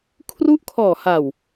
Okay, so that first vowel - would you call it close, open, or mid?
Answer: close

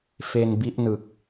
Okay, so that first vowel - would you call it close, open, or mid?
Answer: mid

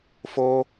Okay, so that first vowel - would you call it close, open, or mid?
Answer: mid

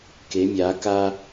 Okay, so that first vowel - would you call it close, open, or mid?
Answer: mid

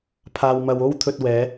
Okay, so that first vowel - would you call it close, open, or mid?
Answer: open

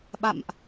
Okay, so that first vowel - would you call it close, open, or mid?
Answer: open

